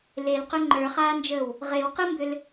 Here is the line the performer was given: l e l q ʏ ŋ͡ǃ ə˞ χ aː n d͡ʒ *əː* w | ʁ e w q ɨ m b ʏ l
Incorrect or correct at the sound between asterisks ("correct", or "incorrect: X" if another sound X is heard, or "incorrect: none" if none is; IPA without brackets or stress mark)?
correct